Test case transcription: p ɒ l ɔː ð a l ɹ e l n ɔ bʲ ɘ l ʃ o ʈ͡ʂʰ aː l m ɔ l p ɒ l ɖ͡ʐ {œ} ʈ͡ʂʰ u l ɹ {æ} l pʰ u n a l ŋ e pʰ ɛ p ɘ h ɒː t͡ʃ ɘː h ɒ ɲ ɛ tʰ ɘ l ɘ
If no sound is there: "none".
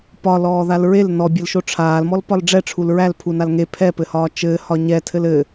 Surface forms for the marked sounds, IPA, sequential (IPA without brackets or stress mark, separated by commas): ɛ, æ